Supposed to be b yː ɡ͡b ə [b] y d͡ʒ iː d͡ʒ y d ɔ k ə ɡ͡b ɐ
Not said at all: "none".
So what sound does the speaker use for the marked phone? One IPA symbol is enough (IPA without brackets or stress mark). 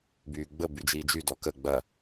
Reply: b